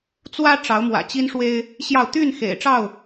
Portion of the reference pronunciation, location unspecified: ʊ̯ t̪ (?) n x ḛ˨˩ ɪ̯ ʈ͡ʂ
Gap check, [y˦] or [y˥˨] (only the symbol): y˥˨